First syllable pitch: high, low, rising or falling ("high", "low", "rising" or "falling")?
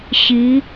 rising